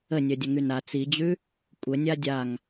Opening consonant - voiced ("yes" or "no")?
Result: yes